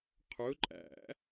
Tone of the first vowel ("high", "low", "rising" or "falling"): rising